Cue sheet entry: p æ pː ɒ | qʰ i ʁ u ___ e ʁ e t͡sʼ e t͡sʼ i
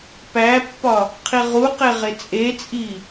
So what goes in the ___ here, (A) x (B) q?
B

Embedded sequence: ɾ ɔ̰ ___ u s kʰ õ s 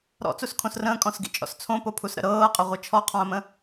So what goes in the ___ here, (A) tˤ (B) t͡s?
B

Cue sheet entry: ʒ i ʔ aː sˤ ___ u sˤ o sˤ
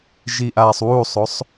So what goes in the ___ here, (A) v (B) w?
B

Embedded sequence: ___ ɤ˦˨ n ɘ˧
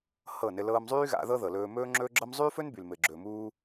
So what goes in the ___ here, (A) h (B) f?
A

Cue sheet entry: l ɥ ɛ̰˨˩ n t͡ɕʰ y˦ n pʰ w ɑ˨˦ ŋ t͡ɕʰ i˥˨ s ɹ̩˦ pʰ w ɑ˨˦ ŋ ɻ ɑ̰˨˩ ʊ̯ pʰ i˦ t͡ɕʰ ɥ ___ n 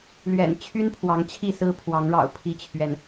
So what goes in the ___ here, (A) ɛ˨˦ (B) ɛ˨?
B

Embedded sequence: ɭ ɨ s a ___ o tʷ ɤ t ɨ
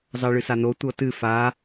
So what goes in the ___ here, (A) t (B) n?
B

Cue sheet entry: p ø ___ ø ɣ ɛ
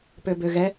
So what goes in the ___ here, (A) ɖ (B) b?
B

